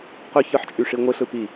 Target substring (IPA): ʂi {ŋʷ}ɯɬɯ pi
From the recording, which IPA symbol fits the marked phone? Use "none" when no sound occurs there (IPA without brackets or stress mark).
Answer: ŋʷ